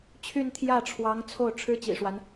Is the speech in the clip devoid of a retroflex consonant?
no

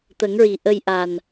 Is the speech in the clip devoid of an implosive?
yes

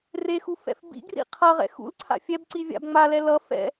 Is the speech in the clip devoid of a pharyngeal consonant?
yes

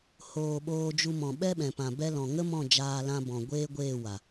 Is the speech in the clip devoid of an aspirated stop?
yes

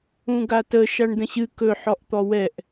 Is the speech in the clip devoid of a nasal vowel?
no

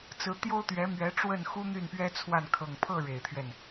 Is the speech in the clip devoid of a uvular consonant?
yes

